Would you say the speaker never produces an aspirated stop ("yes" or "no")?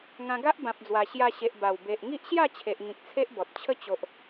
no